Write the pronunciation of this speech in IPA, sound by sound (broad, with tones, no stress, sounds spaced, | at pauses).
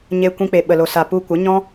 ɲ e˧ kʷ ĩ˧ k͡p e˨ ɓ ə˨ l o˨ s a˨ p u˧ kʷ ə˨˦ ɲ ɔ̃˦